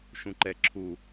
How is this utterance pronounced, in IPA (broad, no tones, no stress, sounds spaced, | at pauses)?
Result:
ʃ ũ ǃ ɛ ǁʰ u